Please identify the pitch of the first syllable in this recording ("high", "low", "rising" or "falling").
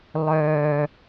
low